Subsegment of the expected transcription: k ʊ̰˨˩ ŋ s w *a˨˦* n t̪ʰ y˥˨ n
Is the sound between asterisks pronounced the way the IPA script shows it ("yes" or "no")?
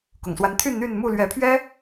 yes